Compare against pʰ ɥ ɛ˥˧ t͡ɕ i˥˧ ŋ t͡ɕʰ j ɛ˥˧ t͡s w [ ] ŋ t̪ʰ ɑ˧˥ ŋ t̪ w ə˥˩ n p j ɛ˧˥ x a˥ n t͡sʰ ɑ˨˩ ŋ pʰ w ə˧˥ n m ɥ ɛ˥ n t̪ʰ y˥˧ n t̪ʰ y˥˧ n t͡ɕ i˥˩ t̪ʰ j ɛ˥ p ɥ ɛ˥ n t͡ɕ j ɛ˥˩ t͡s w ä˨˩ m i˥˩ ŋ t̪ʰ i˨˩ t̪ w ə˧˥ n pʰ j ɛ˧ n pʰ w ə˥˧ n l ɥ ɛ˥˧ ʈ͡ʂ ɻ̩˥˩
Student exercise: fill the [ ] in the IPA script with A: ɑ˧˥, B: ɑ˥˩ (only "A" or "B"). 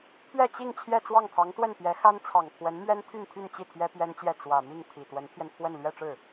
B